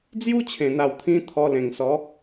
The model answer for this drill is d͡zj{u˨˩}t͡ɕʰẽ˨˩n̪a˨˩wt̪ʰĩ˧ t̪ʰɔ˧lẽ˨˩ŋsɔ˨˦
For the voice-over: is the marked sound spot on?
no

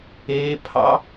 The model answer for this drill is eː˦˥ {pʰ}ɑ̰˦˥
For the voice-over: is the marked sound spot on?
yes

